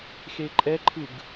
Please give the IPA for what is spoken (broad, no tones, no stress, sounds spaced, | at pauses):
x e ǃʼ ɛ ǃʰ ɯ ɡ